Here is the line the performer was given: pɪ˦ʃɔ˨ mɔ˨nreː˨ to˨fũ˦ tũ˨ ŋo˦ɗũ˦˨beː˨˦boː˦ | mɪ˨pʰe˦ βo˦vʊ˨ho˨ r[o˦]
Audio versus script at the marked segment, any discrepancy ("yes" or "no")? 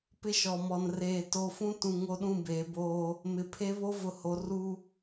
yes